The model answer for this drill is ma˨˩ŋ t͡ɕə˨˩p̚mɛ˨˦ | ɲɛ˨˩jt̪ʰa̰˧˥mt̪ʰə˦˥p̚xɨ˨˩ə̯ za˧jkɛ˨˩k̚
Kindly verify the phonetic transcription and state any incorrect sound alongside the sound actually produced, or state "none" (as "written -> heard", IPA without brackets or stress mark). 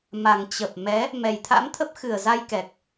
ɲ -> m